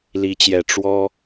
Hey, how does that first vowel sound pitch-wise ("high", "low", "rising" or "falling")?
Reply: rising